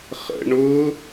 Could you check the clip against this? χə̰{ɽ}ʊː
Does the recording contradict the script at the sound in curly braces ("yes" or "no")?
yes